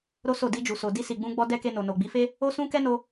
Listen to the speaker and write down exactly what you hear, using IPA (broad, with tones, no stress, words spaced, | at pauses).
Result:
ɾo˦so˦˨ di˧d͡ʒu˨so˨ di˧si˨ɡ͡bũ˧ɡ͡bɔ˧ dɛ˦ke˧no˨no˨ ɡ͡bi˨˦fe˦ | o˦sũ˦ kɛ˦no˧